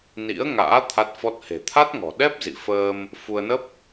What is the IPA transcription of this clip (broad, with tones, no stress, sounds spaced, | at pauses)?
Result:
n ḭ˧˥ ə̯ ŋ a̰ː˧˥ t̪ʰ a˦˥ t̚ f ɔ˦˥ t̚ h e̤˨˩ t̪ʰ a˦˥ t̚ ŋ ɔ̤˨˩ ɗ ɛ˦˥ p̚ z ḭ˧˨ f əː˧ m | f u˧ ə̯ n ə˦˥ p̚